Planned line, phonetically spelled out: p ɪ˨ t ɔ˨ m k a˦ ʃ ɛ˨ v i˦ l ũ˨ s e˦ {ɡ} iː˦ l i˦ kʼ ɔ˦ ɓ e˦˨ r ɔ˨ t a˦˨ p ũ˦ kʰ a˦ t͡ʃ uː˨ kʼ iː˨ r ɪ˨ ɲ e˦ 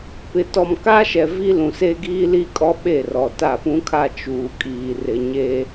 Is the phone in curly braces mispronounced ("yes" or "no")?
no